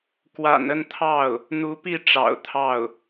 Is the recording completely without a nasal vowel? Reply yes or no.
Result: yes